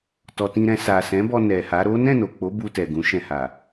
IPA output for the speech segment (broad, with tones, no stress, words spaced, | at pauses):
tɔ˨tĩ˧ɾɛ̃˧ sa˨sɛ̃˨˦bɔ˧ nɛ˨ha˨˦ ɾo˦ nɛ̃˦˨no˨k͡po˨˦ bu˧tɛ˨ɡũ˨˦ ʃɛ̃˧ha˨